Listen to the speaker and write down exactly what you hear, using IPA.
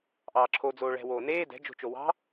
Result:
ʔ ɑː ǁʰ o d͡z oː ɭ ɛ̤ w oː n eː d ɛ̤ d͡ʒ o̤ t͡ʃ o w ɑ̤

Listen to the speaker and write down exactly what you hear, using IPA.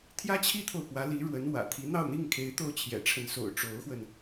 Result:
t̪ʰ j ä˥ t͡ɕʰ i˥ t̪ʰ o˨ ʊ̯ p w ä˧˥ l i˧˥ ɻ w ə˧˥ n w ä̰˨˩ t̪ʰ i˧˥ n̪ ɑ˥˧ ʊ̯ n̪ i˥˩ ŋ kʰ e˧˥ ɪ̯ t̪ o˥˩ ʊ̯ t͡ɕʰ j ɛ̰˨˩ ʈ͡ʂʰ ə˧˥ n s o̰˨˩ ʊ̯ ʈ͡ʂ o˧˥ ʊ̯ x w ə˧ n

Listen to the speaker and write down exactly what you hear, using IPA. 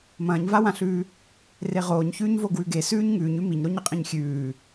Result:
m ɐ̃ː ɲ v a w ã ɬ ʉː | r e ʁ oː ɲ ç ʉː ɲ v o ɡ w ʉ ɡ e s ʉː ɲ ŋ ʉː ɲ ʉ m i ɲ ɾ o ɲ ɐ qʼ ĩ ɲ xʲ ʉː

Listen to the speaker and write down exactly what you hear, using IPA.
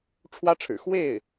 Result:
ʈ͡ʂʰ w ä˥ ʈ͡ʂʰ ɻ̩˨˩ x w e˥˩ ɪ̯

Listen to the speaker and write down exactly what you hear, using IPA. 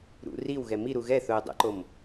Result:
ɾ ṵ r i w ɣ ɛ m i ɾ u ɣ ɛ θ ʊː dˤ ɛ̰ ǃ o m

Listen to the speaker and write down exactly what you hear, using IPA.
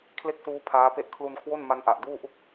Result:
kʰ l e˥˩ k̚ s uː˦˥ pʰ aː˦˥ p e˥˩ ʔ kʰ l u˧ n kʰ w o˥˩ n m a˦˥ n ʔ a˨˩ ʔ d uː˥˩ ʔ u˥˩ k̚

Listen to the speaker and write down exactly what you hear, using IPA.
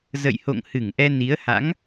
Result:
z ə̰˧˨ j h o̰˧˨ ŋ h ɨ˧˩ ŋ ʔ ɛ˧ n i˨˦ ə̯ h a̰˧˥ ŋ

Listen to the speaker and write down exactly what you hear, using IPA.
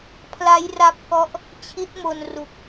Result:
pʰ l a˦˥ j r a˦˥ p̚ k ɔ˦˥ ʔ | t͡ɕʰ i˦˥ t̚ m o˧ n r u˨˩ k̚

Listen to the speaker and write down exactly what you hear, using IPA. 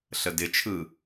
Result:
ɬ ə d ɪ t͡ʃʰ ɯ

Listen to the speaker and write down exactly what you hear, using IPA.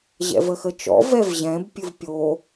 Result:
ʑ ɛ̰ v ə x ə t͡ʃ ɔ̰ v ɛ v ʑ ɛ̃ b pʲ ɨ v pʲ o

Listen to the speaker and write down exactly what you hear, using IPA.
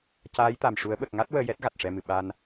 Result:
c aː˧˥ j t̪ a˨˩ m ʂ u˨˩˦ ə̯ ɓ ə˨˩ k̚ ŋ a˦˥ t̚ w əː˧ j ɛ˦˥ t̚ ɣ a˨˩ t̚ ʂ ɛ˧ m ɨ˨˩ ɓ a˧ n

